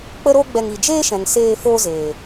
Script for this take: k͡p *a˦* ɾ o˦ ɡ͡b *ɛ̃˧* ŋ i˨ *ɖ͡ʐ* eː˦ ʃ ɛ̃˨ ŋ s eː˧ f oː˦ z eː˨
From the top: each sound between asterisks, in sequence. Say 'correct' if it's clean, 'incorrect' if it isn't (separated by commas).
incorrect, incorrect, incorrect